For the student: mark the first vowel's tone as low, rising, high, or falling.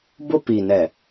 high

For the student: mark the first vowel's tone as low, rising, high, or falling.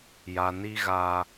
low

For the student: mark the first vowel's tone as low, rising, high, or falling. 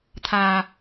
low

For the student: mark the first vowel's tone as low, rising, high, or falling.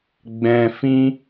low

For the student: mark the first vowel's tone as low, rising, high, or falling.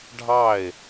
falling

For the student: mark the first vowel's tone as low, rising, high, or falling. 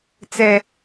high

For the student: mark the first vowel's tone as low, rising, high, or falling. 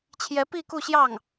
rising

